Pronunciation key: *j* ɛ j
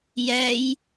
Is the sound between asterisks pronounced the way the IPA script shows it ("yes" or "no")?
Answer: yes